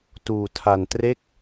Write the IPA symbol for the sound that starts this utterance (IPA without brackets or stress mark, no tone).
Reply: t